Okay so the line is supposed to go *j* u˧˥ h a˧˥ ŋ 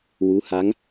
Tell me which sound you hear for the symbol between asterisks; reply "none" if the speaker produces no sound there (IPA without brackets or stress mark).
w